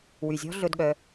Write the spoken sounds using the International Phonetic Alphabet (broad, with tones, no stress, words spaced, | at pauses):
wy˨zʲɔ̤˦ ɮɵ˧dɠœ˧